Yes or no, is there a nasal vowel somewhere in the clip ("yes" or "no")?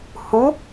no